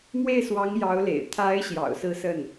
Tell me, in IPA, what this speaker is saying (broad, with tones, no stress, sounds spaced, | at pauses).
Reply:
m w e˥˩ ɪ̯ s w ɑ˧˥ ŋ j ɑ˧˥ ʊ̯ l ḛ˨˩ ɪ̯ t̪ʰ a˧˥ ɪ̯ ɕ j ɑ̰˨˩ ʊ̯ s ɹ̩˥˧ s ə˥˩ n